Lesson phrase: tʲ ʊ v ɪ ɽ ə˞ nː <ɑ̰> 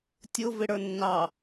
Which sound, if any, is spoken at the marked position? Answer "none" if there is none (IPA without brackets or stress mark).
ɑ